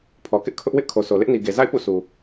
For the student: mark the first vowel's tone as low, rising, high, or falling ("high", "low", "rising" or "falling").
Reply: low